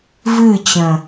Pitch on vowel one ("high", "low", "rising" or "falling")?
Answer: falling